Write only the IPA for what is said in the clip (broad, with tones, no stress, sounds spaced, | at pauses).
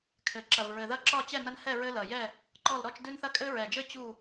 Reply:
kʰ ɘ˨˩ ǁ ɐ˨˩ v ɹ ɘ˨˩ ð ɐ˥˨ ǁ ɒ˥˨ t͡ɕ ɛ˥˨ n ɐ˦ n h ɛ˥˨ ɹ ɘ˦ l ɐ˨˩ j ɛ˥˨ | ǃ ɔ˥˨ l ɾ ɔ˥˨ t͡ʃ d ʉ˦ n θ ɐ˥˨ kʼ ɘ˦ ɹ ɛ˨˩ d͡ʒ ɘ˥˨ t͡ɕ u˥˨